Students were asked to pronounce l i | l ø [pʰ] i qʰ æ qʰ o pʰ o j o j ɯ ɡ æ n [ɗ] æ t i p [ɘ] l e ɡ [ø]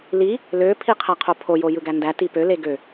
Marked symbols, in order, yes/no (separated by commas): yes, no, no, yes